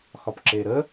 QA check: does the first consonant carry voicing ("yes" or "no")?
no